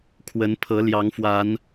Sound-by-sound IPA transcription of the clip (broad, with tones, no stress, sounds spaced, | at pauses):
kʰ w ə˨˦ n pʰ ɤ˨˦ l j ɑ˨˦ ŋ f w a˨˦ n